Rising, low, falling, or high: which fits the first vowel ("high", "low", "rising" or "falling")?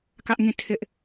high